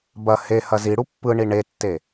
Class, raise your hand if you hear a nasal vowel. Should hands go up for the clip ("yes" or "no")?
no